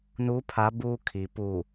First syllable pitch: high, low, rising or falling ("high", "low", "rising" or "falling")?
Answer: rising